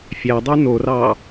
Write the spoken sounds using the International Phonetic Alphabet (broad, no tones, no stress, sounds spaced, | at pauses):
fʲ æ dˤ ʉ n o r ɑ